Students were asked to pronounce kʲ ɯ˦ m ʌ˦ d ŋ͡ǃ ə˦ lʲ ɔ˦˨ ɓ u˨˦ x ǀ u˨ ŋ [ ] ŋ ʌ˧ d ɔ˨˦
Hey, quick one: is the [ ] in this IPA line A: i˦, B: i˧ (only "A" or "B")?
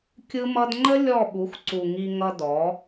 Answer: B